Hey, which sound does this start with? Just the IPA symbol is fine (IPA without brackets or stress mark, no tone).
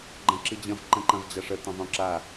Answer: ɡ͡ǃ